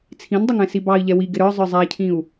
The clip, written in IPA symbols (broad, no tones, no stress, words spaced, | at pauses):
t͡sʰĩndˤʊŋɛ̃ sibɑi̯ ʎɛwiɡɪ ɾə˞ zˤə˞zˤæcʰĩu̯